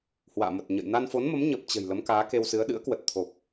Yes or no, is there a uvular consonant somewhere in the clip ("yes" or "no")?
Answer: no